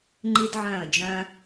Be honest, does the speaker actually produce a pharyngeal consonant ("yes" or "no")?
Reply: yes